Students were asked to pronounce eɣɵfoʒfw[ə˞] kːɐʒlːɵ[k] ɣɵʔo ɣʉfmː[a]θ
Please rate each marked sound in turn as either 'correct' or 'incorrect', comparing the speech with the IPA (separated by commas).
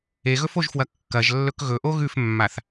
incorrect, correct, correct